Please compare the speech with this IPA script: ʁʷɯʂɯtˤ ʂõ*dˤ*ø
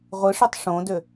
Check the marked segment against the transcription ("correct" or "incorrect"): incorrect